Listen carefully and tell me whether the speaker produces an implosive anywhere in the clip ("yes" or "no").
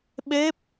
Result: yes